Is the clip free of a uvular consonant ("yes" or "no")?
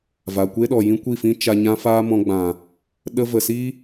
yes